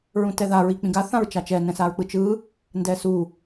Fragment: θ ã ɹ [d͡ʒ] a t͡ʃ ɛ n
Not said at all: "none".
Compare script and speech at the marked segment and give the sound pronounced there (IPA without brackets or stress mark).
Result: t͡ʃ